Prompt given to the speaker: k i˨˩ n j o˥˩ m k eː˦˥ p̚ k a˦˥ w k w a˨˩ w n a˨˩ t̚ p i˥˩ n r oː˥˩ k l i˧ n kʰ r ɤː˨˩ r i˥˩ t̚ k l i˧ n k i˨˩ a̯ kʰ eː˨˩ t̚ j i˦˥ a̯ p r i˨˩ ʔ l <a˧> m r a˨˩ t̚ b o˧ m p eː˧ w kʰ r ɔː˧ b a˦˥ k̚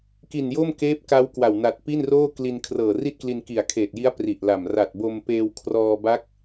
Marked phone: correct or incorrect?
incorrect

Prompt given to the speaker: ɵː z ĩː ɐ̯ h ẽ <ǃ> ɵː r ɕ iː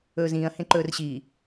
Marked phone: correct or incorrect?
correct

